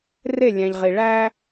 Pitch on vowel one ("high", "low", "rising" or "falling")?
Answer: falling